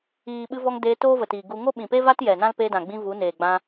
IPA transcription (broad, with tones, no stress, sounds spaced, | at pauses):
iː˨ ɓ ɨ˧ v ɔ˧ ŋ d eː˧ t oː˦ v ə˨ t iː˨ ɡ u˧ ŋ o˦ ɓ ĩ˨ p e˦ v a˦ t j ɛ˨ n ã˦ l p eː˧ d ã˨ ɡ͡b ĩ˧ v u˨˦ n eː˨ ɡ͡b ã˧